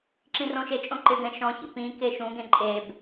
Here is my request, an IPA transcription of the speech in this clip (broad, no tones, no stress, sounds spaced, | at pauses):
ǁ ĩ r õ ʃ e t͡ʃʼ õ ǃ ɪ ɡ ɛ̃ ʃ ɔ̃ ç ḭ p ĩ k e ʃ ũ ɡ ẽ ǃʼ e b